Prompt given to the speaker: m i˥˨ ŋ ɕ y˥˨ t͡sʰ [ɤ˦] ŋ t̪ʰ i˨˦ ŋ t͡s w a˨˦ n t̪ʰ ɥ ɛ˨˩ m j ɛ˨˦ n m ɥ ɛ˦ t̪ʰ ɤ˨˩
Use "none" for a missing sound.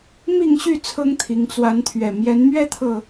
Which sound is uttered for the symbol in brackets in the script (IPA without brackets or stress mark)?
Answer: ɤ˦